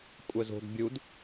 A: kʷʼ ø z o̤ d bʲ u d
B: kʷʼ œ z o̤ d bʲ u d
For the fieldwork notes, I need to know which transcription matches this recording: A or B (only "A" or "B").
B